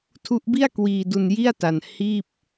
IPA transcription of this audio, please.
tʰ u˦˥ ʔ b i˥˩ a̯ k w iː˧ d u˧ n j i˥˩ a̯ t a˧ n h iː˥˩ p̚

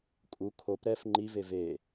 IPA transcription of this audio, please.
kʼ u kʰ o p ɾ ɛ f ŋ͡ǃ i v e v e

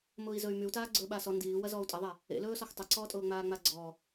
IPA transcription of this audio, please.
m ʊː i̯ z ɵ y̯ m y u̯ t aː ɡ͡ǀ ɵː ɓ a s ɔ n d iː w ɐ z ɔː u̯ tʼ ɐ ðˤ a | ḛ l ɵː s ɔ x tˤ ʊ ǀ ɔː tʼ ʊː ŋ͡m aː ŋ͡m a ɡ͡ǀ ɔ

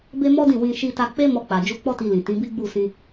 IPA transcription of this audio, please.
b e˦ m ɔ˦ d ĩ˦˨ w ĩ˧ ʃ i˧ t a˧ k͡p e˦ m ɔ˧ k͡p a˨ d͡ʒ u˨˦ k͡p ɔ˦ t i˧ l ĩ˨ t ĩ˨˦ b i˦ ɡ͡b u˦˨ s ĩ˧

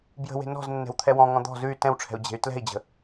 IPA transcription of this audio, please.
b j ə̤ w e̤ n ɔ̤ z nː ɛ̤ w t̪ʰ ɛ w ɔ̃ ŋ ɔ̃ d̪ ɔ̤ z ʉ y̯ t ɛ̃ w ʈ͡ʂʰ ɛ̤ u̯ d͡ʑ e̤ y̯ t l ɛ̤ i̯ d͡ʑ ə̤

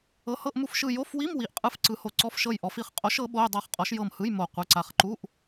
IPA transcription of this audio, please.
ɤ˨˥ h ɤ˧˥˧ ʔ m u˦˨ f ʃ ɯ˦˨ j o˧˥˧ f w i˧˥˧ m w i˨˥ ʔ qʼ ɯ˦˨ f ǀ ɯ˨˥ h o˨˥ ǀ ɔ˧˥˧ f ʃ ɤ˦˨ j ʔ ɔ˨˥ f i˦˨ χ qʼ o˨˥ ʃ ɤ˨˥ ɓ o˧˥˧ j dˤ a˦˨ χ qʼ ɔ˨˥ ʃ j ɤ˦˨ m h ɯ˧˥˧ j m o˦˨ qʷ ɯ˧˥˧ ǀ a˦˨ χ ǃ u˧˥˧ ʔ

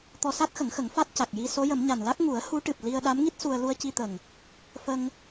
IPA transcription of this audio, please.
t̪ ɔ˧ s a˦˥ t̚ x ə˨˩˦ ŋ x ə˨˩˦ ŋ f a˦˥ t̚ c a˨˩ k̚ j i˧ s o˧˥ j ə˨˩˦ m ɲ a˨˩ n l a˦˥ k̚ ŋ u˨˩˦ ə̯ h u˧˥ ʈ ɨ˨˩ p̚ l i˧ ə̯ ɗ a˧˥ m ŋ i˦˥ t̚ s u˧ ə̯ l u˧ ə̯ c i˧ t̪ ə˨˩ ŋ | f ə˧ ŋ

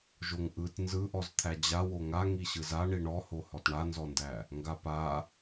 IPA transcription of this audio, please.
ʒ o ŋ ʔ ɯ t n z ɯ ʔ ɔ z t̪ʰ æ d͡ʑ a w o ŋ a ŋ i ɕ ɯ z a ɳ i ɳ ɔ h o h ɔ t ɳ a n z ɔ n d æ | ŋ ɡ a p a

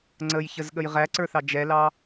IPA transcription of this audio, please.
ŋ͡ǀ ə j ç ə z ɠ ə j ʁ æ ǀ ə˞ θ ɑ d͡ʒ ɛ l ɑ

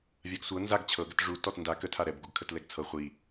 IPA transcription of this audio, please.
vʲ a ɡ sʷ ɤ n z a ɡ t͡ɕʰ ɤ ɡ ə t ʐ u t ɔ t n d a k ə tʰ a ɾ ɛ b ɡ u ɡ kʰ ə t l ɛ ɡ t͡sʰ ɤ χʷ i

